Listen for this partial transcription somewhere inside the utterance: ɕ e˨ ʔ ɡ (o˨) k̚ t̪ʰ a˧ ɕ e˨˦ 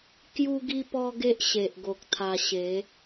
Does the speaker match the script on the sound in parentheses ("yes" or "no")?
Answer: yes